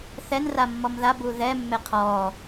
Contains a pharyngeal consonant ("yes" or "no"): no